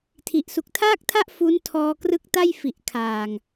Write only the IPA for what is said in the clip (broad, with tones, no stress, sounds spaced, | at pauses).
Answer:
tʰ i˨˩ ʔ s u˨˩ k̚ tʰ aː˥˩ k̚ tʰ a˥˩ ʔ f u˦˥ n tʰ ɔː˧ k r ɯ˦˥ k̚ t a˥˩ j f i˨˩ ʔ kʰ aː˨˩ ŋ